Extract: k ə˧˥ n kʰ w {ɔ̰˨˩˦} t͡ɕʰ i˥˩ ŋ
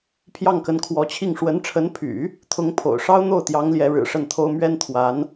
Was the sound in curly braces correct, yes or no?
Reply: no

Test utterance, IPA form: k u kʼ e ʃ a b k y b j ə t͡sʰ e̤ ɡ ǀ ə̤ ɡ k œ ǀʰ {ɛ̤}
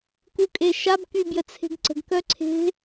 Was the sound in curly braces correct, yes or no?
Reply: no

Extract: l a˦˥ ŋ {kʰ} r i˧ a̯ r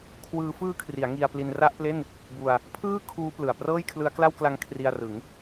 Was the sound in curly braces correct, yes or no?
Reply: yes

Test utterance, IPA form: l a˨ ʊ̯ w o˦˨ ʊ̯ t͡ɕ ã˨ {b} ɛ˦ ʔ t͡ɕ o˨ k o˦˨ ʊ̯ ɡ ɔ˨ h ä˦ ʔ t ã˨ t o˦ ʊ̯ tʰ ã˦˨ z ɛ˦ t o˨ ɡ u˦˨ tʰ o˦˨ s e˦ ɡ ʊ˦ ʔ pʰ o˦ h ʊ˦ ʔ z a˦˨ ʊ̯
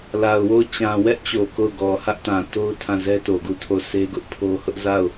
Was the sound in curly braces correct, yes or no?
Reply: no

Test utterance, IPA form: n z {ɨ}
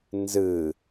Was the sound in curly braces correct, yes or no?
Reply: yes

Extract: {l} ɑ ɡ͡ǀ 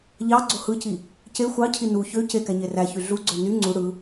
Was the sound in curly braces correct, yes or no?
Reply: no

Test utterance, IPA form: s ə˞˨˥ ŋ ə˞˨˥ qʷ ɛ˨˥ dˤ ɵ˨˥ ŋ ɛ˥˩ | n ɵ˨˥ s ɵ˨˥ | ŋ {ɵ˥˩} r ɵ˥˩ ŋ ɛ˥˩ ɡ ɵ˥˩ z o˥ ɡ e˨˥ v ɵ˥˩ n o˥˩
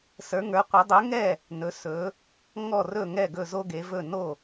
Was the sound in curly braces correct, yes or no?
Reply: no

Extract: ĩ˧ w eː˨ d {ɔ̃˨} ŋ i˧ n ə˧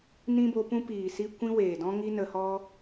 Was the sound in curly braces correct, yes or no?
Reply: no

